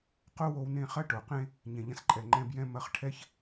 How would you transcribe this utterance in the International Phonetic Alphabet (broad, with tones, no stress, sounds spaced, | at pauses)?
q o˦ w o˧ w n ẽ˦˨ χ ɐ˧ ʈ o˨ q ẽ˧ | ɲ ɛ̃˨ ʎ ɐ̃˧ s ǃʼ ɛ˨ ŋ͡ǃ ɛ̃˧ b j ɛ̃˧ m ɐ˧ χ ʈʰ ɛ˦ ç